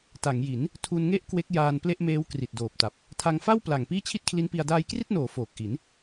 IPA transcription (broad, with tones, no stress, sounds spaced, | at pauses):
t a˩˦ ŋ j i˩˦ n | tʰ u˧ n ŋ e˥˩ ʔ k w e˦˥ k̚ j aː˧ n p l e˥˩ ʔ m eː˦˥ w k r i˨˩ t̚ d oː˨˩ p̚ t a˨˩ p̚ | tʰ a˧ ŋ f a˥˩ w p l a˨˩ ŋ p iː˥˩ t͡ɕʰ i˥˩ t̚ kʰ l i˦˥ n p i˧ a̯ d aː˧ j k r i˥˩ t̚ n oː˩˦ f oː˨˩ k̚ ʔ i˩˦ n